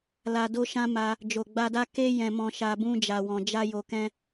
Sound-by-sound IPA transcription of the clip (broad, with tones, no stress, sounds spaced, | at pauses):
l a˧ d o˦ ʃ ã˦ m a˧ | d͡ʒ o˨ ɡ͡b a˧ d a˦ k e˦ j ɛ̃˧ m ɔ̃˧ ʃ a˧ b ũ˦ d͡ʒ a˧ w ɔ̃˧ d͡ʒ a˦ j o˧ k ɛ̃˦